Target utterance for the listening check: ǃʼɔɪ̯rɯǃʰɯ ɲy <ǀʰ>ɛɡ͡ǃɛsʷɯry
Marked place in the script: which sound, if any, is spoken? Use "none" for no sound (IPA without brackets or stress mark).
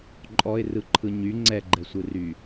ŋ͡ǀ